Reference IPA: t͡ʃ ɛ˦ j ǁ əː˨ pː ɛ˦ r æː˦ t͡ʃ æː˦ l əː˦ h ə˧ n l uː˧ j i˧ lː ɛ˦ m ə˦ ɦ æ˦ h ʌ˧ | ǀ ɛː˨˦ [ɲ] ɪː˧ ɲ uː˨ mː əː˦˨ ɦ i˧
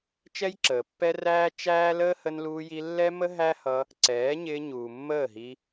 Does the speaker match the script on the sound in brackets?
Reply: yes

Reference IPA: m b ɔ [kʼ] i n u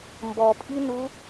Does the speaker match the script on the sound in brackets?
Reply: no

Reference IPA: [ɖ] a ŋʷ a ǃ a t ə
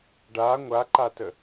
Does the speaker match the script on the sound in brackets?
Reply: yes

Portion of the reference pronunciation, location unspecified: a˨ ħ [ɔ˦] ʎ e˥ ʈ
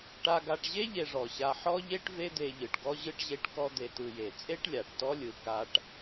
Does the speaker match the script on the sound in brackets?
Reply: no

